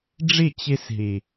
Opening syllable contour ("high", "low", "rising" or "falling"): falling